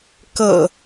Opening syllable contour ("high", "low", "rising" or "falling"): low